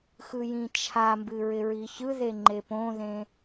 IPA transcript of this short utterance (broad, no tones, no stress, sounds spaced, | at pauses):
x ɯ j ĩ t͡ʃʰ a m b ɨ ɹ ɪ ɹ i ç ɯ ð e ŋ͡ǃ e p õ ð ẽ